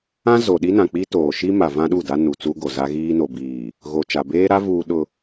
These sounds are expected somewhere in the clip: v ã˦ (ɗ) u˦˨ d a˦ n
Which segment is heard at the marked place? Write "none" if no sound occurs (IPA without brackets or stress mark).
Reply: ɗ